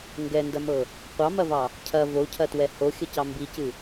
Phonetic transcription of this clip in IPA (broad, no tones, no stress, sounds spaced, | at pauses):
ŋ ɡ ɛ n d ɐ m ɤ | qʷ ɑ m ɐ v ɑ | cʰ ɐ v o cʰ ɐ t w ɛ h o xʲ ə c ɑ m b i c ɨ